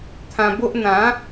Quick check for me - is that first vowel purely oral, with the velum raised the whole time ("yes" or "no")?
no